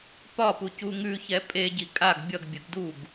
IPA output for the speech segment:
p ɒ p u c u ŋ ʉ ç ɛ pʼ e ɟ i kʼ a ɡ bʲ ʌ ɡ bʲ ə ɡ d u ɡ

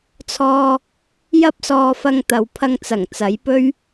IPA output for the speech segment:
t͡sʰ ɔː˧ | j ɐ˥ p̚ s ɔː˧ f ɐ˧ ŋ t̪ ɐ˨ w pʰ ɐ˧ ŋ t͡s ɐ˨˩ ŋ t͡s ɐ˨˥ j p ɵ˥ ɥ

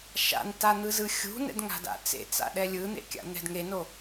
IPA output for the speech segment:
ʃ a̰ n t a n̪ ɯ z ɯ xʲ ṳ n ɛ̰ d ŋ a̤ d a̰ t͡s ḛ t͡s a̰ ɗ ɛ lʲ ɯ n̪ ḛ kʲ a̰ n̪ ɛ̤ d ŋ e n o

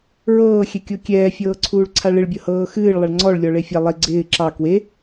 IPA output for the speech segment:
ɹ ɤː xʲ ɛ kʲ o kʲ ɛː fʲ ɤː ǀʰ uː ɭ ǀʰ a ɭ ɪ ɭ bʲ ɤ h ɤː x ɨː ɭ lˠ a ɭ ŋ͡ǀ ɔ ɭ lʲ ɔ ɭ e fʲ a lˠ e ɡ͡ǀ ɪː ǁ ɑ k w e

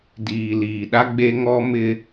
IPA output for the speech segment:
d iː˨ l iː˨ ɗ a˦ ɡ͡b e˦ ŋ ɔ˦ m ɪ˦

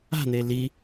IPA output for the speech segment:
a̤ n̪ e l i

